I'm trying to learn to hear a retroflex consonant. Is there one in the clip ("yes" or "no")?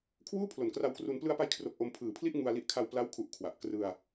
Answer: no